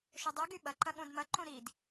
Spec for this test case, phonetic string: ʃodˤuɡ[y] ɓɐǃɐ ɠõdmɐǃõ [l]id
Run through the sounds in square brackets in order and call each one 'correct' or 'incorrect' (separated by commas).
correct, incorrect